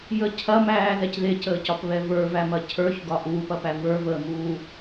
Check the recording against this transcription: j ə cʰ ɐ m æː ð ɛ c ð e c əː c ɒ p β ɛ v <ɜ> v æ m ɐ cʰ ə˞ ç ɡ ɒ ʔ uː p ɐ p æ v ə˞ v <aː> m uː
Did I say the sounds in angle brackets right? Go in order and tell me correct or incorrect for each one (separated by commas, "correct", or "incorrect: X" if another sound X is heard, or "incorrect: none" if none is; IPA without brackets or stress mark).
incorrect: ə˞, incorrect: əː